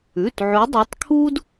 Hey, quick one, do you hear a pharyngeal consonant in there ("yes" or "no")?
yes